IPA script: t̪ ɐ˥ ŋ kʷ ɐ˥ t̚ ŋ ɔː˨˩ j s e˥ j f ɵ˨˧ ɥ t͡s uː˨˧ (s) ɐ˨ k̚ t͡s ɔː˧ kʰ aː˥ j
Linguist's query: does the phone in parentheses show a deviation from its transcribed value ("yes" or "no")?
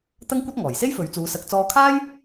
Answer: no